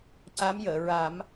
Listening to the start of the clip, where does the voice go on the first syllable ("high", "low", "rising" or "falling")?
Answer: rising